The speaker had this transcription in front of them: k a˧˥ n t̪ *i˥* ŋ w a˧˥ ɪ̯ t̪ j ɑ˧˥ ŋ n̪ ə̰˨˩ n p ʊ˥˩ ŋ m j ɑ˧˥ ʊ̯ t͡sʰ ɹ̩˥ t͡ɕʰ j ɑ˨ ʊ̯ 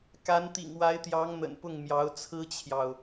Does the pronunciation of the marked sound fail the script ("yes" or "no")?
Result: yes